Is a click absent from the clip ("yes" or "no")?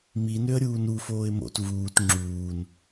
no